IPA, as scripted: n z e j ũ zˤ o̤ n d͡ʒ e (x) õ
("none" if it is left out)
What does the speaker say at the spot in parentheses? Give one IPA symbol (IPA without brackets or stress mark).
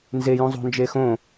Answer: x